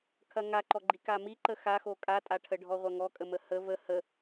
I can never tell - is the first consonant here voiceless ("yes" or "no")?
yes